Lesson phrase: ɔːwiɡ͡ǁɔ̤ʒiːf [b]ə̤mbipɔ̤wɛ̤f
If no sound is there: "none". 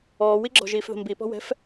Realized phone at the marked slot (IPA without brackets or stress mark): ð